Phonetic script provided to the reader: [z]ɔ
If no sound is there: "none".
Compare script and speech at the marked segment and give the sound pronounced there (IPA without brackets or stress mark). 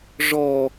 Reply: ʐ